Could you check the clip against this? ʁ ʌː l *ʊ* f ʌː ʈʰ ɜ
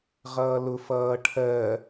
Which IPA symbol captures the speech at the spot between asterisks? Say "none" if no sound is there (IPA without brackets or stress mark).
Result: ʊ